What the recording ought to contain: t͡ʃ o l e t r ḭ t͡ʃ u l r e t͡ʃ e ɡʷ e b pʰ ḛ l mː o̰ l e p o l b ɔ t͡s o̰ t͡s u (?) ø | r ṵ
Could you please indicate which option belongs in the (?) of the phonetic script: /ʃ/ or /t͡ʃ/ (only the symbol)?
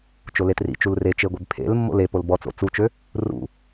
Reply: t͡ʃ